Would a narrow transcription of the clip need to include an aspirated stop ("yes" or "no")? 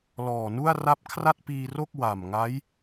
yes